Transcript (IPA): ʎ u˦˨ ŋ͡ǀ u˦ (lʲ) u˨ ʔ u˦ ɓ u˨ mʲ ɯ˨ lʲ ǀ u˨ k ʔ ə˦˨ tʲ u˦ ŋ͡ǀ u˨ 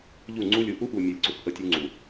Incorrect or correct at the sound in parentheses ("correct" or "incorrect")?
correct